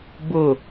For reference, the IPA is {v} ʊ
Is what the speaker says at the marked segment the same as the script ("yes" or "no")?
no